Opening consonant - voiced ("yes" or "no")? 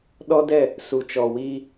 yes